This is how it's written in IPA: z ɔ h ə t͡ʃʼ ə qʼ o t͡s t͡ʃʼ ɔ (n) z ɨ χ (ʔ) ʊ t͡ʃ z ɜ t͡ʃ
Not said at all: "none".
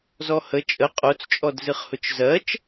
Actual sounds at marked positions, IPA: d, h

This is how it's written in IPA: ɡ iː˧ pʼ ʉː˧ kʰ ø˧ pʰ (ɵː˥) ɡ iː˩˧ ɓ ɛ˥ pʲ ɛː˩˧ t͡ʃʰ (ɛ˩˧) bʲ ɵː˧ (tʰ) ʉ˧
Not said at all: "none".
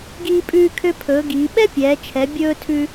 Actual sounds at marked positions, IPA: ɵː˩˧, ɛ˩˧, tʰ

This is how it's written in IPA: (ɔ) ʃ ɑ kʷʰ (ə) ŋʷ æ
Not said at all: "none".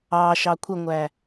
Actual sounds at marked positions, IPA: ɑ, ə

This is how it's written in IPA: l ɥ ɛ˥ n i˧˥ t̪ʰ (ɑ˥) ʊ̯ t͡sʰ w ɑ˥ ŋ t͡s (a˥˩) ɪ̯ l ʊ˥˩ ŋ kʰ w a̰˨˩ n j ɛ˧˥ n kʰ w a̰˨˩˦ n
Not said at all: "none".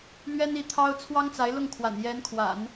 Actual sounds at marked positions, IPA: ɑ˥, a˧˥

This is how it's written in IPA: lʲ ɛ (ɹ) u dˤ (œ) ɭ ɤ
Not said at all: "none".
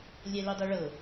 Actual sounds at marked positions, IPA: l, œ

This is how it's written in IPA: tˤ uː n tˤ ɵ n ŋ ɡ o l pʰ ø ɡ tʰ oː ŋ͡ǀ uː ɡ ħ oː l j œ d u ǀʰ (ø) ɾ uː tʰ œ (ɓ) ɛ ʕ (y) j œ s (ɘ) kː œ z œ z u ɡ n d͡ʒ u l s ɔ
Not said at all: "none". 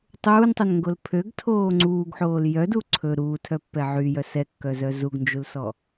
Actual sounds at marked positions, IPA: ɵ, pː, y, ɛ

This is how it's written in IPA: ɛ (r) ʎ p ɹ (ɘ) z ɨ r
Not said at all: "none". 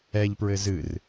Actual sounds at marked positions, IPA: none, ɘ

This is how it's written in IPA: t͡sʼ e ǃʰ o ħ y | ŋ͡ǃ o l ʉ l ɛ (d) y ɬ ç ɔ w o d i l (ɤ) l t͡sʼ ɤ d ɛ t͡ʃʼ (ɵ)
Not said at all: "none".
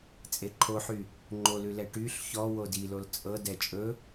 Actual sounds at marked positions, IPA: ʈ, o, ɵ

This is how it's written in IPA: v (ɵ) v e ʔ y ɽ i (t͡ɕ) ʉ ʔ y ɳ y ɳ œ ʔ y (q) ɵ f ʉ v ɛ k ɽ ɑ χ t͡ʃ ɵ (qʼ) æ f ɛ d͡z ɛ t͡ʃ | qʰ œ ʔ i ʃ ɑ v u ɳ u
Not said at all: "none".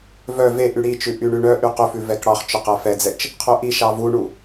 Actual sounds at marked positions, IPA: œ, t͡ʃ, q, q

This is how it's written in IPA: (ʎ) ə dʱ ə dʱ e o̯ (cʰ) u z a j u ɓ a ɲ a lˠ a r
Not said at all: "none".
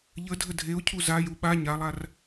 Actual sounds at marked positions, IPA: ʎ, cʰ

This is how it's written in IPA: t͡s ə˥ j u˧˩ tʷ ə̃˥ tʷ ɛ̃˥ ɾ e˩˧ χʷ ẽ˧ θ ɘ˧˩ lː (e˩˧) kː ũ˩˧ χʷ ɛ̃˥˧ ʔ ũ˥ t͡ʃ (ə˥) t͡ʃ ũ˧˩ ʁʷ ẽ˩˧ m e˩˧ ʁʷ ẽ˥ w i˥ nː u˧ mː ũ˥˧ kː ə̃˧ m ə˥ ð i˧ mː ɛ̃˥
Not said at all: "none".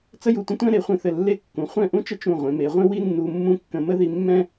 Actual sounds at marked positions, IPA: e˥˧, ə˥

